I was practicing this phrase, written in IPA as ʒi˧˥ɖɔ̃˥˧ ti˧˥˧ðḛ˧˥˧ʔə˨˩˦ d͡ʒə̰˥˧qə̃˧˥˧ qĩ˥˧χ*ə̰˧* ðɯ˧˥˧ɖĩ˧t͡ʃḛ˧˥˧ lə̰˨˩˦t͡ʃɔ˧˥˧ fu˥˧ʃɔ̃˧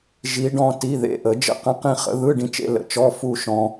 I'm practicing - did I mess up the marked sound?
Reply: yes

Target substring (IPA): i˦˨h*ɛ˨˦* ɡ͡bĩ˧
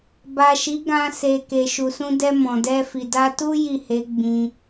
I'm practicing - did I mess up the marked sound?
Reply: yes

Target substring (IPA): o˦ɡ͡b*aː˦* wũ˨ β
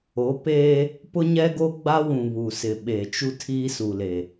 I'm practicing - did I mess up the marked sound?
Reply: yes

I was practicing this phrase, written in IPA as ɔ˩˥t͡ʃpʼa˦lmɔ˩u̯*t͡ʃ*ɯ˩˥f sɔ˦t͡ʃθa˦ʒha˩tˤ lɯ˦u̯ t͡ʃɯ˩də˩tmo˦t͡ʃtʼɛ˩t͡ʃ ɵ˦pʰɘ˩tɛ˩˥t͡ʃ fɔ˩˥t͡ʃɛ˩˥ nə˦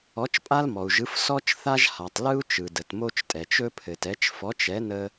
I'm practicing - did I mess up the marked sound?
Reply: yes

